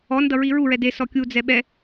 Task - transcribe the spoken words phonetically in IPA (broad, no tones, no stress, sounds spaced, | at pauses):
ɔ n d ʌ ɹ i ɹ u ɹ ɛ d e s ɔ kʲ u d͡z ɛ ɓ ɛ